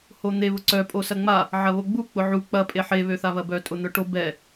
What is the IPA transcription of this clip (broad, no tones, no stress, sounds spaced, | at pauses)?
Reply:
h o n̪ e β ʊ ǀ œ pʼ o s ɐ ŋ͡m a | ʕ ɐ β o ɡ͡b u k͡p ʊ ʕ u k͡p ɐ pʼ e ħ e β ø θ a β ɐ b œ tʼ ʊ n̪ œ ʈ o b ɛ